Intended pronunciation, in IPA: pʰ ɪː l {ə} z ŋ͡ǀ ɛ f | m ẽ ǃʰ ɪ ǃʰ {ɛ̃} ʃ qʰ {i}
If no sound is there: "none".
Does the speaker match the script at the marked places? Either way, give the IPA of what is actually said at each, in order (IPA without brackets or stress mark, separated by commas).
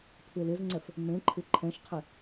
ɪ, ɛ̃, ɪ